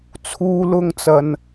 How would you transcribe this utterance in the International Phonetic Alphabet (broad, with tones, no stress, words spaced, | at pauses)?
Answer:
t͡sʰuː˥lʊ˥ŋt͡sɐ˧n